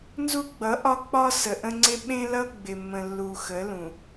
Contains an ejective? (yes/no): no